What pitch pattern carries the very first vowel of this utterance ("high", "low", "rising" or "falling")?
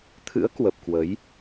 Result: rising